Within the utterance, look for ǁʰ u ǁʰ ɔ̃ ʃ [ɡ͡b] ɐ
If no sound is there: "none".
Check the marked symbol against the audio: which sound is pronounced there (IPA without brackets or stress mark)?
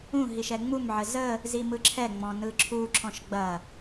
ɡ͡b